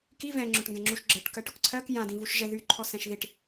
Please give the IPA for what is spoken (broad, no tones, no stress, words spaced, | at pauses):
ki vɛ̃ŋ͡ǁʊʈŋɡɛ̃ŋ͡ǁuʃ ɡ͡ǁəʈ kɜʈʊkǀʰɜk jã dĩvuʃʒɛ ðy ǃʰɔsɛ̃ʃðiʈ